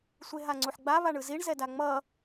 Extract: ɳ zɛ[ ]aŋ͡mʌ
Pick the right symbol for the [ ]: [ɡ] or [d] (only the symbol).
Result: d